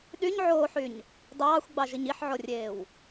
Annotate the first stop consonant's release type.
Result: implosive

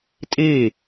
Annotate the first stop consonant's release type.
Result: ejective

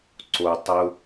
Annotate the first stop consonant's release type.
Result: click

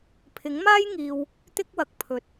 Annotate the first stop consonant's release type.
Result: aspirated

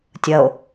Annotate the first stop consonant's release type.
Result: plain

